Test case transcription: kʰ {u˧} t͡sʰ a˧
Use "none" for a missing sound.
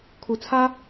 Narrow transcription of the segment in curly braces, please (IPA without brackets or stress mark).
u˩